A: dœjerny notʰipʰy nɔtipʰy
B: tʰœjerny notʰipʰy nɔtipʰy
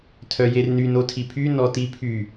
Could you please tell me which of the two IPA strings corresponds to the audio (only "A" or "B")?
B